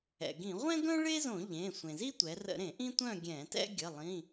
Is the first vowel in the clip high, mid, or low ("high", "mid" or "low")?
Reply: mid